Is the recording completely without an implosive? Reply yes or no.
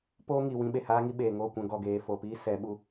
no